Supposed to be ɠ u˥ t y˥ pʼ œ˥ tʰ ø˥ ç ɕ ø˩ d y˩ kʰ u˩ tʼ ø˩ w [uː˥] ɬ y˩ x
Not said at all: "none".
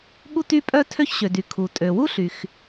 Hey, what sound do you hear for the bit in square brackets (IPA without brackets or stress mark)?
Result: u˥